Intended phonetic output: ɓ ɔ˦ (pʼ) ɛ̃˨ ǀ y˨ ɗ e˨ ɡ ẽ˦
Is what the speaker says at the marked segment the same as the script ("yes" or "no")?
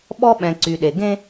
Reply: no